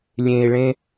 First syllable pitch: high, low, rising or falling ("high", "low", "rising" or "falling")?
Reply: low